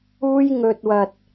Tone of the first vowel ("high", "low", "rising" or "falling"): high